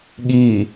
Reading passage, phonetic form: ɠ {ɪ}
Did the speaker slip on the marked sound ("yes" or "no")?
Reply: yes